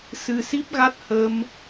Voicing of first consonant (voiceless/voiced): voiceless